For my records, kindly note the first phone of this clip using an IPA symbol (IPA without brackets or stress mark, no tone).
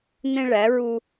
n̪